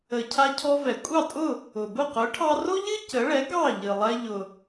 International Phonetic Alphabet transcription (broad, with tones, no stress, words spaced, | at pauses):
ə˩ cʰa˧cʰɔ˧ vɛ˩kʷʼɑ˥˩ tʼʊ˥˩ | ʊ˩ bʊ˥˩qʊ˩˥ ʈʰɑ˧ro˥ʎɨ˥ cə˩˥ ɭɛ˩˥ ɡɑ˥˩ʎɨ˩lˠɛ˧ ʎʊ˩